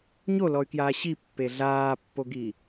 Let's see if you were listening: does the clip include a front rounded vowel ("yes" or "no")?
yes